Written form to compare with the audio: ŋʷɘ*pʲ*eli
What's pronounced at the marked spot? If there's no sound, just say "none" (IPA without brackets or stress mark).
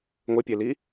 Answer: pʲ